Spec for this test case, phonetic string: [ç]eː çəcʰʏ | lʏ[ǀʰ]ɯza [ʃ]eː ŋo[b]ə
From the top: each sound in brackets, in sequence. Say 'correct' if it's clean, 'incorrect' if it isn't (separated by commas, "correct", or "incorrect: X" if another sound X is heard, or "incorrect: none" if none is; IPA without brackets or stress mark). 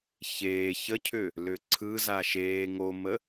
correct, correct, correct, incorrect: m